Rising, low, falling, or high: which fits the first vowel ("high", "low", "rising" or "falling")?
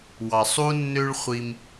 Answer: low